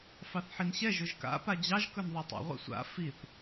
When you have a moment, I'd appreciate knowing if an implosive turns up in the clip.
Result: no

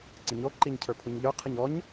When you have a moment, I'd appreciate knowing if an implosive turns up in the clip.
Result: no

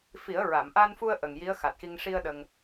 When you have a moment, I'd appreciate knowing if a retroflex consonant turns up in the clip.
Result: yes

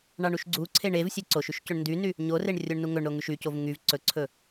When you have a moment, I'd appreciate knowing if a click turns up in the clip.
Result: yes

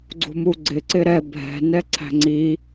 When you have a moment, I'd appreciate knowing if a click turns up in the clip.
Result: yes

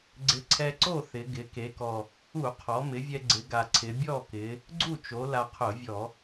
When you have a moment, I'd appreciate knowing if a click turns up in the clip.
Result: yes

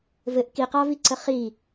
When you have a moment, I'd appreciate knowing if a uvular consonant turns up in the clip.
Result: yes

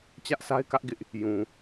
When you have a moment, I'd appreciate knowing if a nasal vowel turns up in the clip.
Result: yes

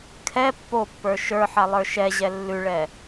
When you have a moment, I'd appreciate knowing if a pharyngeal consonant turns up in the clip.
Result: yes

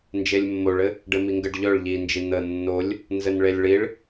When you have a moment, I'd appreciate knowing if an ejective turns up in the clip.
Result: no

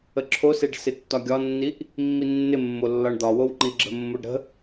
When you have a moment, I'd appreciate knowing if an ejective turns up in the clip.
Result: no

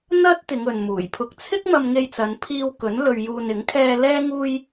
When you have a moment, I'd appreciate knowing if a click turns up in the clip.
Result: no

